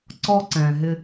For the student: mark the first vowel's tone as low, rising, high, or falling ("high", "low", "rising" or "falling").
high